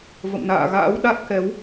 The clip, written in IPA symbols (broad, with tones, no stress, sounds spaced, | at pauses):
v ə̰˧˨ m n a̰ː˧˨ ɣ a̰ː˧˥ w ɗ a˦˥ t̚ k ɛ˨˦ w